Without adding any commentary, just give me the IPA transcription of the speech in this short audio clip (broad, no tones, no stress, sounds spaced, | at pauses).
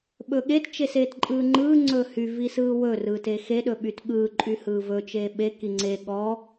ɓ ɵ ɠ e t t͡ʃ e s eː t ǃʼ ɯː ŋ͡ǃ ɯː ŋ͡ǀ ɵː h y v i s ɯː w ɵ r ɯː t e x e ɗ ɵ ɓ y t ɠ ɯː ǃʼ y h ɯː v ɵ t͡ʃ eː ɓ e k i ŋ͡ǀ e ɠ ɔ